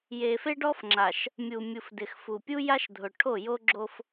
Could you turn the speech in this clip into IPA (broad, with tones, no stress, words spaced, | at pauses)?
je˨fe˦ɖɔ˦fŋ͡ǁa˨ʃ | mʲu˨ mʲu˨fdɪ˨xfu˨ pʲu˦ja˦ʃdʱʊ˨ ʈʰo˦˨jo˦ɡ͡ǁo˦f